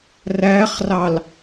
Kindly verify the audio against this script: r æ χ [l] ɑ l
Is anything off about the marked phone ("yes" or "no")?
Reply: yes